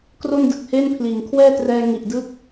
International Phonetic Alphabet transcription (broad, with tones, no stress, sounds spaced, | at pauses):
k r o˥˩ n d ɯ˨˩ k̚ h eː˥˩ n pʰ l iː˩˦ ŋ kʰ w ɛː˥˩ t r ɛː˧ ŋ i˨˩ ʔ d ɯː˥˩ k̚